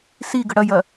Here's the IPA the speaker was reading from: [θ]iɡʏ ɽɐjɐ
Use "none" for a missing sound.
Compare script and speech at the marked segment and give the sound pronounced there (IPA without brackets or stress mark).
s